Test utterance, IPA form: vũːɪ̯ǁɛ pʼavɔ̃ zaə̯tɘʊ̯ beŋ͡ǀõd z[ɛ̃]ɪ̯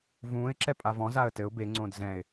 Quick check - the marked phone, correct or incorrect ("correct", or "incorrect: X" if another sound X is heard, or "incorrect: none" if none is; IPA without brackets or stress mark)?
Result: correct